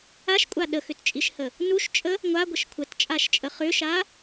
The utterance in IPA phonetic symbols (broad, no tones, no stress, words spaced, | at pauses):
aʃkʷʼa ɗəxʏtt͡ʃʼiʃhə | nuʃt͡ʃʼə | ŋʷaɡʷəʃ kʷʰətt͡ʃʼaʃt͡ʃʼə χʏʃa